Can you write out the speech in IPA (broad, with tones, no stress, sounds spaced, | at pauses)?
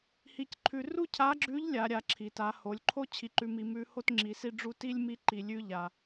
h i˧ c ǃʰ ʉ˧ r u˥ cʰ a˧˥ ɡ͡ǁ ʉ˧˥ ʎ lʲ a˩˧ ɾʲ a˩˧ ǁʰ i˩ t a˩˧ h o˩˧ lʲ ǃʰ o˥ t͡ɕʰ i˧ ǃ ʉ˧ m i˧ m ʉ˧˥ h o˥ t ŋ͡ǁ i˩˧ s i˥ ɖ͡ʐ u˥ t i˥ lʲ m i˧˥ ǃ i˩ lʲ ʉ˧ ʎ a˩